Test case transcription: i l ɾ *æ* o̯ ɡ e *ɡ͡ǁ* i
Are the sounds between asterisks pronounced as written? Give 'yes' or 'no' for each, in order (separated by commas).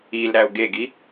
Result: yes, no